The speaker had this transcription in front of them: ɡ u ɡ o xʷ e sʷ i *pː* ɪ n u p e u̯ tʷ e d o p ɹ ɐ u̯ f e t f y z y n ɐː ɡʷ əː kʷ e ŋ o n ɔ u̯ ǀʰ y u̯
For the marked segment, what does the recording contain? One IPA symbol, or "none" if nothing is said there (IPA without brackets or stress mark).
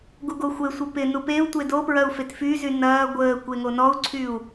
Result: p